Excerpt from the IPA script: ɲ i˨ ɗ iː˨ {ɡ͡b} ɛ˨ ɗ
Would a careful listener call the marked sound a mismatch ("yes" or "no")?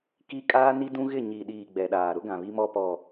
no